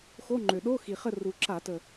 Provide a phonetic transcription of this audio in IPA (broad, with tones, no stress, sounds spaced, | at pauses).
x o˧˥˧ ŋ͡ǃ ø˨˩ ɗ o˧˥˧ x i˨˩ χ ə˦˨ r u˨˩ ǁ a˧˩˧ t ə˨˩